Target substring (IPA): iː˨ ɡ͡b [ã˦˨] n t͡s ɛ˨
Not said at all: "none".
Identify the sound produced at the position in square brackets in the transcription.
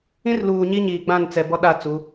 ã˦˨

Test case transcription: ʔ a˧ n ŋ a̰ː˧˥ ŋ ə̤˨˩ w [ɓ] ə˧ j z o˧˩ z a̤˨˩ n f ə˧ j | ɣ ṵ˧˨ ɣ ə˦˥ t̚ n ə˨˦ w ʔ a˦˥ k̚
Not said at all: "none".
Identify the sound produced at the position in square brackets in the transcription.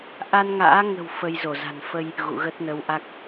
f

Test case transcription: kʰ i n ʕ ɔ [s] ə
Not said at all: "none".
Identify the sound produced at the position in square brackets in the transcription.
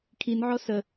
s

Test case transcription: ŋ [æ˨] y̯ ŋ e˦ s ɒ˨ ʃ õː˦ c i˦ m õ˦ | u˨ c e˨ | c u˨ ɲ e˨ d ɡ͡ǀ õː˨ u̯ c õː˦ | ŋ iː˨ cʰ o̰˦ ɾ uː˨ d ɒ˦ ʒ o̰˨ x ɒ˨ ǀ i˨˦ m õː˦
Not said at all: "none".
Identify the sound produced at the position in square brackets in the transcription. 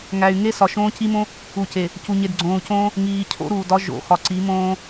æ˨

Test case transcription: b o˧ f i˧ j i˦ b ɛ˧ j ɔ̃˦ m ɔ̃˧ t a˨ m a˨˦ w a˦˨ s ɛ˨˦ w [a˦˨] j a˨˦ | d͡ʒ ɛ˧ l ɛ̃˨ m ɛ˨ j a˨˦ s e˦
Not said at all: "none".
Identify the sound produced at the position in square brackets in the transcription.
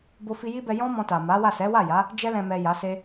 a˦˨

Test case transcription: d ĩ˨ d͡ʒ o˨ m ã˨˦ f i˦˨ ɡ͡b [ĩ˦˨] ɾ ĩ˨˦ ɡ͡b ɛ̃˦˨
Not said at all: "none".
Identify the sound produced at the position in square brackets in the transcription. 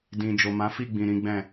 ĩ˨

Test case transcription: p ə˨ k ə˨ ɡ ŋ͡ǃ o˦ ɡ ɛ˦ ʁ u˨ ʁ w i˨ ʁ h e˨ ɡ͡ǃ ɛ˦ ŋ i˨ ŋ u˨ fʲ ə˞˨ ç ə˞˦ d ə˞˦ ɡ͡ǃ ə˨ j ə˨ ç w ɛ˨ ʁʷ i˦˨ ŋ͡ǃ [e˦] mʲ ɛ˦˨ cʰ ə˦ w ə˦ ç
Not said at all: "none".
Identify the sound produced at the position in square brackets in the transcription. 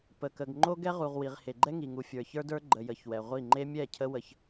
e˦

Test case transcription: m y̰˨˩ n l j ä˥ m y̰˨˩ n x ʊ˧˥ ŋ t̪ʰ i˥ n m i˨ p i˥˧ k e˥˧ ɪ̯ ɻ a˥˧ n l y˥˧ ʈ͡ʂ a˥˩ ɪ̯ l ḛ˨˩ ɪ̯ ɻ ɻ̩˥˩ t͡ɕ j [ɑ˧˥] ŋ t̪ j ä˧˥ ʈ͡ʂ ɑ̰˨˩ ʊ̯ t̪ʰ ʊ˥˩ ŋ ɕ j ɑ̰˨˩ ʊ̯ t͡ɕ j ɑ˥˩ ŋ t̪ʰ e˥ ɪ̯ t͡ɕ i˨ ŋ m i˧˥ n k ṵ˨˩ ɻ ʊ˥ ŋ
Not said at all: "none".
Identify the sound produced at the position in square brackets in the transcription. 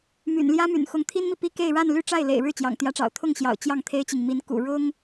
ɑ̰˨˩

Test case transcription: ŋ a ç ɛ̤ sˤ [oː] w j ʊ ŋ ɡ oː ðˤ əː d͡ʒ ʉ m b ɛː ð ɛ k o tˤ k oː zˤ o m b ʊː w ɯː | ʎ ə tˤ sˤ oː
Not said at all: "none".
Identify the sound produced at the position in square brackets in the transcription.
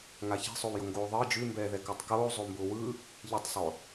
o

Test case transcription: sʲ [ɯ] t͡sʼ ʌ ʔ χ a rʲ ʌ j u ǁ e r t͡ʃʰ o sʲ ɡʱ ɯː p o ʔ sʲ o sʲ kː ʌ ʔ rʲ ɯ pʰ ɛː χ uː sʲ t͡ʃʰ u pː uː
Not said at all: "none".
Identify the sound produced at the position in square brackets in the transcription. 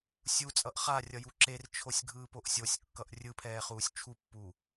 u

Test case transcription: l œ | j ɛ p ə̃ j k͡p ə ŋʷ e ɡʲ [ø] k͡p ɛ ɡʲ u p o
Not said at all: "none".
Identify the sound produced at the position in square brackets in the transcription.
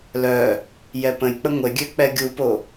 ø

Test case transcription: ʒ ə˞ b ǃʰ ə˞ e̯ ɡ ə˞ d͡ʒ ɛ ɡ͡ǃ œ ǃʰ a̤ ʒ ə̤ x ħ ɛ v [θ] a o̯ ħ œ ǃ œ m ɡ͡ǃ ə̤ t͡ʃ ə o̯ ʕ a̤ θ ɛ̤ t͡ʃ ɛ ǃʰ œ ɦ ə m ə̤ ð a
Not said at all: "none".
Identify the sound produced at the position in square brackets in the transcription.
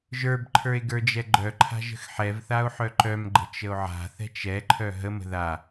θ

